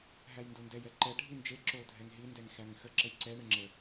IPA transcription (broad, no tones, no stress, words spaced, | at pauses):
ɦæjndondɛj ɛǃɛ ɖʱind͡ʒe ǁo dʱɛŋɦi ndɛŋxæŋxə ǁəjǀɛ ɳəŋ͡ǁə